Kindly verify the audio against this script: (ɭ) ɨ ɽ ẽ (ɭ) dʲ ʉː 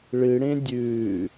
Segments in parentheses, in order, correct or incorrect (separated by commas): correct, incorrect